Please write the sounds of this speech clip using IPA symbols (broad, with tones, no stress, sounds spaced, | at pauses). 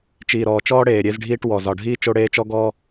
t͡ʃ iː˨ ɾ ɔː˨ t͡ʃ ɔː˦ ɽ eː˨ ɾʲ e˦ z ɖʱ iː˦ ʈ w ɔ˨ z ɒ˨ ɖʱ iː˦ t͡ʃ o˦ ɽ eː˦ t͡ʃ ɔ˦ ɡ ɔː˦